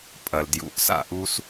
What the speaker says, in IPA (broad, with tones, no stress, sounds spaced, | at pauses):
pʼ ɐ˨ l d j ṵ˨ ʔ s a̰˦˨ ʔ u˦ s